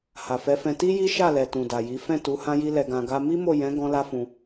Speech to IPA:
ha˨fɛ˨˦fɛ̃˧ ti˦ji˦ʃa˦˨lɛ˨ tũ˨da˨ji˨˦ fɛ̃˦˨tu˨˦ hã˦ji˦lɛ˧ɡã˧ ɡa˧ mi˦mo˦˨jɛ̃˨˦ ɡɔ̃˦la˦fũ˧

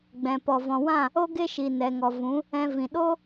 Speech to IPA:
ɡ͡bɛ̃˨pɔ˨ vɔ̃˨wã˦˨ | o˦ ɡe˦ʃi˨ nɛ˨ŋɔ˨vũ˨˦ | ɛ̃˧vĩ˨ ɗo˦

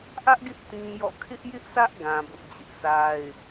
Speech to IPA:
ʔä˦ʔɡɪ˦ʔ tĩ˦jɔ̰˦˨ kʰɪ˦ʔjɪ˦ʔsʰä˦ʔ ɡã˦bʊ˦ʔd͡ʑɪ˦ʔ sa˦ɪ̯

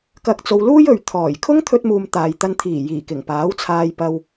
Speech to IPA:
kɐ˧k̚t͡so˧w luː˥jɵ˨ɥ t̪ʰɔː˨˩j kʰʊ˥ŋt̪ʰɵ˧t̚muː˨m t̪aː˨jt̪ɐ˧nt̪ʰiː˨˩jiː˨˩ kɪ˨˩ŋpaː˨˥wt͡sʰaː˧j pɐ˧w

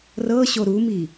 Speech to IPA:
rɤɕo ɾumi

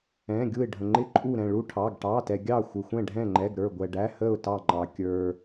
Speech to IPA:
ɛ̃˩˧˩ɡʲu˧˩ɪ̯ɖʱə̃˩ŋ͡ǃɪ˧˩ ǃʼu˧˩ɾɛ̃˧˩ ɭu˧˩ʈʰɑ˩˧˩ɡ ʈɑ˩˧˩tɛ˩ɡʲɑ˧˩ xʷɪ˩xʷɛ̃˧˩ɖʱɛ̃˧˩ŋ͡ǃɛ˩˧˩ɡ ɾə˞˧˩ɡʷɛ˩ɖæ˩˧˩hə˧˩ʊ̯ tɑ˧˩ŋ͡ǃɑ˩ kʲə˞˩

